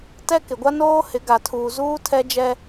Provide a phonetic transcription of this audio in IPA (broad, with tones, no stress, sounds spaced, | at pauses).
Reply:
t ɛ˦ k ɪ˨ ɡʷ a˦ n oː˦ h ɪ˨˦ ɡ a˨ tʰ uː˨ z uː˦ tʰ ɛ˦ d͡ʒ ɛ˦